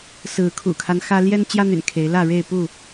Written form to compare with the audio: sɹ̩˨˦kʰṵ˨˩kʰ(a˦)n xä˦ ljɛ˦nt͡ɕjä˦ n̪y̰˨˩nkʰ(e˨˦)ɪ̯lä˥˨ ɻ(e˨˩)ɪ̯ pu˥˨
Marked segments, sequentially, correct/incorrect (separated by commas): correct, correct, incorrect